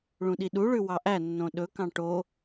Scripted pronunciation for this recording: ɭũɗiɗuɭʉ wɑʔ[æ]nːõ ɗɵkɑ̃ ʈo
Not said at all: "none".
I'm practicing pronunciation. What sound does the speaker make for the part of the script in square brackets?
æ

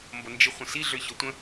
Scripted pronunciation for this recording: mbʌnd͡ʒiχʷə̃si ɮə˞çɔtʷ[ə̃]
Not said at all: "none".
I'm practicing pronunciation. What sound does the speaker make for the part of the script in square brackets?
ə̃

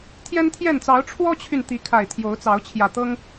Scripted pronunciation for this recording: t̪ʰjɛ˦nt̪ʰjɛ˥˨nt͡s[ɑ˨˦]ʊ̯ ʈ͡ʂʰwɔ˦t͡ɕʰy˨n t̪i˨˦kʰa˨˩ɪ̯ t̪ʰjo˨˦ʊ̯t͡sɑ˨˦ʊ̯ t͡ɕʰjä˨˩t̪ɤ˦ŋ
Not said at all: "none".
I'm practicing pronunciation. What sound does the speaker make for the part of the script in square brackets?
ɑ˨˦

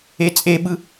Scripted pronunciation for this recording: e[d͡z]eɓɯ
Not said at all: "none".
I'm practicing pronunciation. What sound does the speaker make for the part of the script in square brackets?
t͡sʼ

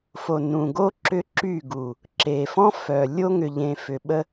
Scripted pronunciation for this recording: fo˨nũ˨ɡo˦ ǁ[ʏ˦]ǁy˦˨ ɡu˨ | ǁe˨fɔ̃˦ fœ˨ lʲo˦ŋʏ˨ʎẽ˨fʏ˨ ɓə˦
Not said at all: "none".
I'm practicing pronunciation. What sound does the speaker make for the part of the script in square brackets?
ʏ˦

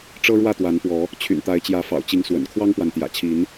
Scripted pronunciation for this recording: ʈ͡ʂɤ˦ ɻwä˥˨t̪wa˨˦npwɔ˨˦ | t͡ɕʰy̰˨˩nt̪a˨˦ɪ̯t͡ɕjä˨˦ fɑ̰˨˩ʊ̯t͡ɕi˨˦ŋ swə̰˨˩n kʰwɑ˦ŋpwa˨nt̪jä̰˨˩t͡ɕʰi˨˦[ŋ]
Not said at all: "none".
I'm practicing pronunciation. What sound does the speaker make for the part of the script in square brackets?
n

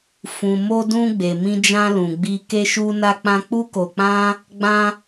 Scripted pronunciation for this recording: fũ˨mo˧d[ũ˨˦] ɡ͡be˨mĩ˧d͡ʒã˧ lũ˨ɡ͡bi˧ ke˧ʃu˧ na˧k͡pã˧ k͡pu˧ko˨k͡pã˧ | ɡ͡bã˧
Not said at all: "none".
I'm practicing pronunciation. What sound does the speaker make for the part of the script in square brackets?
ũ˧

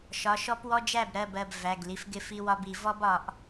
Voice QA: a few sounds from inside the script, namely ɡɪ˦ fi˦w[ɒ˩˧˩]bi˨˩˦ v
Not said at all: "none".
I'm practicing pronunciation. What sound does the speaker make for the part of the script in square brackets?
ɒ˦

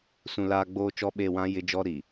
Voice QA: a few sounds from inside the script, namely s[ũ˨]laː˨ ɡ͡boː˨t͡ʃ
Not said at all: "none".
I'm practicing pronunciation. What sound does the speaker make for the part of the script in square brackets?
ũ˨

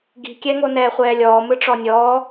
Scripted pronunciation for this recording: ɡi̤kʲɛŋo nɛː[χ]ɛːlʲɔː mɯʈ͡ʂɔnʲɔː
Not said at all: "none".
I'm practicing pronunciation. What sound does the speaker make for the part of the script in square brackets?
χʷ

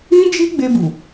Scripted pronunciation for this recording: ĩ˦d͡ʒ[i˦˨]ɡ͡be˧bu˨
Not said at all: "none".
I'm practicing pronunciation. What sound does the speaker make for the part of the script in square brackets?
i˦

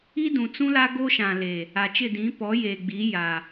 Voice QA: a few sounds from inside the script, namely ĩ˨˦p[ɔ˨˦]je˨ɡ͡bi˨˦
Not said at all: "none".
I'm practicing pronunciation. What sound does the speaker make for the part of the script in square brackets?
ɔ˨˦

